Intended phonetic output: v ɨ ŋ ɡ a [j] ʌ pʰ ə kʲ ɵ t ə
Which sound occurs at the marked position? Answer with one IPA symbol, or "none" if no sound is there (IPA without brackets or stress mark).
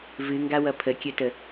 w